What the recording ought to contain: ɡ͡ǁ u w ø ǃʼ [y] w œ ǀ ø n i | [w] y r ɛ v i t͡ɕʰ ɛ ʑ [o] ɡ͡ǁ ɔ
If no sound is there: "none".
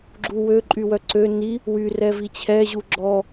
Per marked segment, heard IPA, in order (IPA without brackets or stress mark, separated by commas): y, w, u